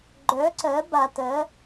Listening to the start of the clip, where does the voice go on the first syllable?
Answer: rising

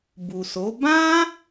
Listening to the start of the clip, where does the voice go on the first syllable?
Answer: low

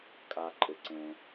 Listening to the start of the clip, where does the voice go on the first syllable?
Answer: high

